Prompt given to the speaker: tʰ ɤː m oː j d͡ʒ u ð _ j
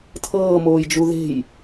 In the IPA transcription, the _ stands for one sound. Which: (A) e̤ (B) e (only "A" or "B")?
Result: A